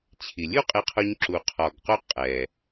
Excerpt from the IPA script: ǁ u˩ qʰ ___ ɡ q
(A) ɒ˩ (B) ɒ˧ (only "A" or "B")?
A